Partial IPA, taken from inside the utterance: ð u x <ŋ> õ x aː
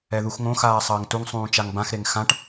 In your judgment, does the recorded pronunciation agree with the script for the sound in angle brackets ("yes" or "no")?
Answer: yes